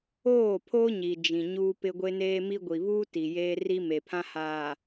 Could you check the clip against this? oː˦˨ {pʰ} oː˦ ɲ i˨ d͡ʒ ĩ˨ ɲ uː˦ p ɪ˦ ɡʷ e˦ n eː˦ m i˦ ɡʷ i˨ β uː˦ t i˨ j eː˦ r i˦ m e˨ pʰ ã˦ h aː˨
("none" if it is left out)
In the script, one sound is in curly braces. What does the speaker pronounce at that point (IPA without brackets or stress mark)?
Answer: pʰ